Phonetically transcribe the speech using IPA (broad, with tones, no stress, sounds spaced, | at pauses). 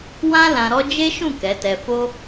w ã˦ l ã˧ ɾ ɔ˦ d͡ʒ e˦ ʃ ũ˦˨ k ɛ˨˦ t ɛ˧ f o˦